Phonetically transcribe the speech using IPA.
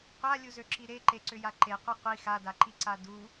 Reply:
qʷalʲuzøǁi ɾeǃeǀʏja ǃeqʷe qʷi xadaǃiǀa du

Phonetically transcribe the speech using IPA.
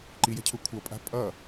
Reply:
ǃijɛ̤cʰu kʷʰʌpʼa̤ pʼʌ

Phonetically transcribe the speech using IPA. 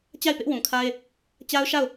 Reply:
t͡ɕa˦˨ɪ̯pɪ˦ʔwũ˨kʰa˦ɪ̯ | t͡ɕa˦ʊ̯ʃa˦˨ʊ̯

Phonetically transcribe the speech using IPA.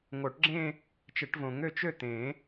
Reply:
ŋo˨˩˦ʈɡ͡ǁẽ˥˧ | t͡ʃə˨˩˦ʈvõ˨˩˦ŋø˥˧ t͡ʃø˥˧t̪ẽ˨˩˦

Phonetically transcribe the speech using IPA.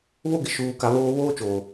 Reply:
βo˦ɡɪ˨ʃuː˨ka˨ βoː˦ βoː˦t͡ʃoː˨

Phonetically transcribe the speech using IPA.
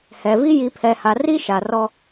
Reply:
hɛ˨vi˦ ji˨pʰɛ˨ha˨ ri˦ ʃa˨rɔ˦

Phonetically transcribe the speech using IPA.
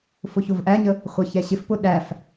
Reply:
fʊçʊvʔæɲə | χʷʌçɛɕɪfpʊ ɗæf

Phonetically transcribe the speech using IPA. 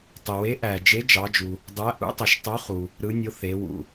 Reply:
tˤe˩we˨˥ʔæ˩ d͡ʒe˨˥d͡ʒɑ˩˧d͡ʒu˩ | dˤæ˨˥ʔṵ˨˥ tˤo˩ʃtˤo˨˥χu˩ | ɾɯ˩˧nʲo˩˧ θe˩˧wṵ˩

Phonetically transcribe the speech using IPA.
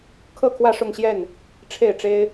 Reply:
kʰɤ˥˨kʰwä˥˨ʂʊ˥˨ŋɕjɛ˥˨n | ʈ͡ʂʰe˥˨ɪ̯ʈ͡ʂe˦ɪ̯

